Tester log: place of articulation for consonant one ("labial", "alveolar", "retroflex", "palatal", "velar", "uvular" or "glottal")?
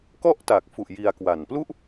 velar